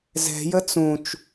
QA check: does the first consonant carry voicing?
yes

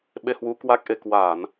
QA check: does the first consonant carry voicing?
yes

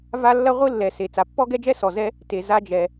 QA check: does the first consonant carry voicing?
yes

